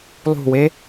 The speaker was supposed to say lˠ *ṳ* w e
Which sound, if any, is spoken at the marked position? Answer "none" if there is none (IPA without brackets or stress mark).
ṳ